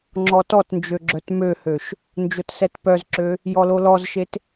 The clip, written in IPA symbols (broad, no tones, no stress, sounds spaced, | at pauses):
ŋ͡ǁ ɔ t ɔ t n d͡ʒ ø ɡ͡ǁ œ t m ø h ø ʃ | n d͡ʒ o t s ɛ t p œ z ǁ ø | j ɔ l o l ɔ z ʃ e t